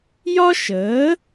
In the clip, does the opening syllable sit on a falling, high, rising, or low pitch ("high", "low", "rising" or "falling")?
high